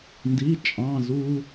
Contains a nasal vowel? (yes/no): yes